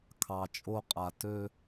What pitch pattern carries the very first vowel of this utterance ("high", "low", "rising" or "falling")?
low